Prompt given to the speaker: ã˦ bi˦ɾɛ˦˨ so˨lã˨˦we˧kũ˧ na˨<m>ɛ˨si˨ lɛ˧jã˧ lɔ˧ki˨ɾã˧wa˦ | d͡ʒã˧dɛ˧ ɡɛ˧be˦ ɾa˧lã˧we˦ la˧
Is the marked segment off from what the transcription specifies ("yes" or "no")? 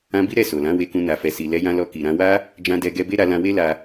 yes